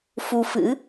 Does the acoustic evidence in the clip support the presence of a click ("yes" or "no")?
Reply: no